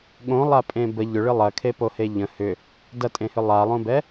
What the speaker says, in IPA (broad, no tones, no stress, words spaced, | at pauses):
ɠõ lˠapʼẽbə ʎʏɭɨ lˠɐkʰepohe ʎə̃ hʏ | dɐtʼẽhʏ lˠalˠõbɛ